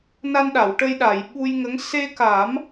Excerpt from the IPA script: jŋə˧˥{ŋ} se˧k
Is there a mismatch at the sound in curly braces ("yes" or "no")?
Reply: no